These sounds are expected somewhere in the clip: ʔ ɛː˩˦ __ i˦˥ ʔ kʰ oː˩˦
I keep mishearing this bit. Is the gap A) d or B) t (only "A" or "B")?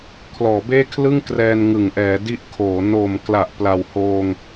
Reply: A